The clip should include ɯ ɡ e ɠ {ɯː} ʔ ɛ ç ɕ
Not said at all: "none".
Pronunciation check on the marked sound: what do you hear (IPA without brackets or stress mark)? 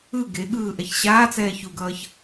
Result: ɯː